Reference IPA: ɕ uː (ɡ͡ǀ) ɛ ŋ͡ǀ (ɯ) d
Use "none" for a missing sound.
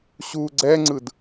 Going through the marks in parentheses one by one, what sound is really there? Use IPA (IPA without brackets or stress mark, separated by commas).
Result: ɡ͡ǀ, ɯ